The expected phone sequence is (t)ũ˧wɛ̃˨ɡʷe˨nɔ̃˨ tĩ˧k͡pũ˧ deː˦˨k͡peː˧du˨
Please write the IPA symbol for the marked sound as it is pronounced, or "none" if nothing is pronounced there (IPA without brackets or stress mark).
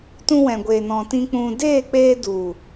t